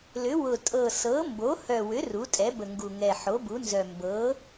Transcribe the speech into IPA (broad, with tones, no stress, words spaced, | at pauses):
lʏ˩˥wʊ˨˩ tʼɤ˨˩sɤ˩˥ mbo˩˥hœ˨˩wʏ˩˥ ru˩˥tʼɛ˩˥bə˨˩ŋɡu˨˩ ŋɛ˨˩ħo˩˥bu˩˥nzœ˨˩ mbɤ˩˥